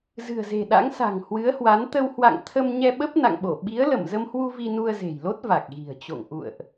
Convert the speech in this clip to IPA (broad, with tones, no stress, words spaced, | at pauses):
zɨ̤˨˩ə̯ze̤˨˩ɗa̰˧˥ŋ sa̤˨˩ŋhwɨ˨˦ə̯hwa˨˦n t̪ə˧whwa̰˧˨ŋt̪ʰə˧m ɲɛ˧ɓə˦˥p̚na̰˧˨ŋɓo˧˩ ɓi˨˦ə̯lə˧˩mzə˧mhwu˧ vi˧nu˧ə̯ze̤˨˩jlo˦˥t̚ va˨˩k̚ɣi̤˨˩ə̯t͡ɕo̰˧˨ŋ ʔṵ˧˨ə̯ʔ